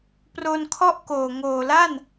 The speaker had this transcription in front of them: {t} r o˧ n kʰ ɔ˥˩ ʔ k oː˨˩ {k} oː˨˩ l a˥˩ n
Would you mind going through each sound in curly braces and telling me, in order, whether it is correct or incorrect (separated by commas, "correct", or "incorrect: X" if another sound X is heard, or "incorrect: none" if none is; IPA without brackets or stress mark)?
incorrect: p, incorrect: ŋ